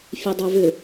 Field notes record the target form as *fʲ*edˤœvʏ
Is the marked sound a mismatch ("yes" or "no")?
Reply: no